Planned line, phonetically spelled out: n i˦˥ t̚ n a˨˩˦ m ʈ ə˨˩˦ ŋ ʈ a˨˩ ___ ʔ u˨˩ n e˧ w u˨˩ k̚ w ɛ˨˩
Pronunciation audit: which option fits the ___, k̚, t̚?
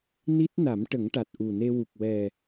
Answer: t̚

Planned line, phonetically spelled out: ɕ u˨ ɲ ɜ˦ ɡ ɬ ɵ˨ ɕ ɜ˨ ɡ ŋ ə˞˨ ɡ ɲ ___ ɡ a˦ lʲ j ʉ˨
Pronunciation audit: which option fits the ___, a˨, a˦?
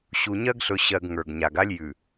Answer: a˨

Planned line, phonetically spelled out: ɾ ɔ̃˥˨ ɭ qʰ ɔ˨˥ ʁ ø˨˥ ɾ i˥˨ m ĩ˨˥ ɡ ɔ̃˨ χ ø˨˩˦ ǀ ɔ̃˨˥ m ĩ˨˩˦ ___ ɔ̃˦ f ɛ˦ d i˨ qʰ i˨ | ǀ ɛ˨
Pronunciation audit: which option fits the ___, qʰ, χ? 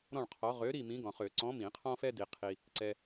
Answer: qʰ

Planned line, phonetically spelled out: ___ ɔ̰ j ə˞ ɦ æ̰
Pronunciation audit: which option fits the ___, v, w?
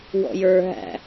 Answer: w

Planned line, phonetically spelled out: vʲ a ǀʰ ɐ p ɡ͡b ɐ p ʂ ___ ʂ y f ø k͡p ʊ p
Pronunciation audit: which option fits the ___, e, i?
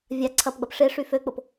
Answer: e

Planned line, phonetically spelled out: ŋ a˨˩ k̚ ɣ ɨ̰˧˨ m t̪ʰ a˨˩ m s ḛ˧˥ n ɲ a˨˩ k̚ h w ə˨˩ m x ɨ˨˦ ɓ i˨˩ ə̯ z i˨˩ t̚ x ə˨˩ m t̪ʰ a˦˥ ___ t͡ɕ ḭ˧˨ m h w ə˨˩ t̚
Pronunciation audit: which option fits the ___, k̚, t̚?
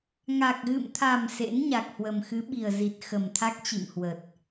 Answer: k̚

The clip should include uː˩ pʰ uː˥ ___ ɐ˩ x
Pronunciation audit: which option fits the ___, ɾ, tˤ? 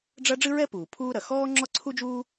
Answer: ɾ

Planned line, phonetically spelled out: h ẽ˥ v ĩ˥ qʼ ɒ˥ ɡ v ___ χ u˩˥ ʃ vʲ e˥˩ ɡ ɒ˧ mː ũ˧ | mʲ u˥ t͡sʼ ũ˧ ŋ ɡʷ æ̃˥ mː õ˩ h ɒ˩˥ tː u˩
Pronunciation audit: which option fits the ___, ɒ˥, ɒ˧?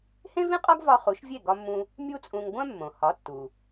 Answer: ɒ˧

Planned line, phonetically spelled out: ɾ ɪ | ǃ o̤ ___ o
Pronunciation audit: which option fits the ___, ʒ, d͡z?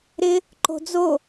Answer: d͡z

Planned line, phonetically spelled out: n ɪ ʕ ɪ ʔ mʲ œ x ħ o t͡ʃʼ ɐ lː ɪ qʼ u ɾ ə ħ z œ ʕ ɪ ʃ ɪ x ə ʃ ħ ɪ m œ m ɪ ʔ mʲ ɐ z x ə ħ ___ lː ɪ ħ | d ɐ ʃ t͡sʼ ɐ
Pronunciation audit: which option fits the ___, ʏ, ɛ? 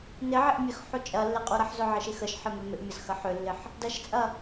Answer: ʏ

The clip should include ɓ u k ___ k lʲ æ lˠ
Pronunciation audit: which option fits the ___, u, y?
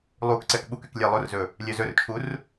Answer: y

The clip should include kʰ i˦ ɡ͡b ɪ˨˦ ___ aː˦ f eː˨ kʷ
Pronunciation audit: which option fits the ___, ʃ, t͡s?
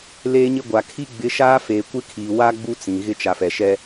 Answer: ʃ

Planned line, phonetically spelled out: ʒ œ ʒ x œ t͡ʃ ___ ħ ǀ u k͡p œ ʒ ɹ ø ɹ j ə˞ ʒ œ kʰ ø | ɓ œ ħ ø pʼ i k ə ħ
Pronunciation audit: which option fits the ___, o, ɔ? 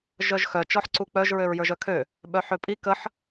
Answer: ɔ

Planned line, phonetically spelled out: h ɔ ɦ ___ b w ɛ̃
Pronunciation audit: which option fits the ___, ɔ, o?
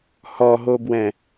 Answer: o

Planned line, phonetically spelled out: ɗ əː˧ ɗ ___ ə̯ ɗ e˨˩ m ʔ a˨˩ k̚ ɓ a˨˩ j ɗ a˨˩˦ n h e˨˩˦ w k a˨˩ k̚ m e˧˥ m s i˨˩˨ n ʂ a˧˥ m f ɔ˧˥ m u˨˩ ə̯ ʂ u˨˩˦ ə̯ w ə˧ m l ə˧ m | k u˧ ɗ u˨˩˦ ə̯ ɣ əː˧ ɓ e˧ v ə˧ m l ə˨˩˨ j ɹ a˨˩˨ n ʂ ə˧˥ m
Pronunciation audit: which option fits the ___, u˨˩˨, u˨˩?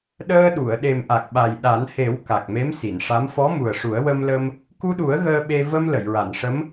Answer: u˨˩˨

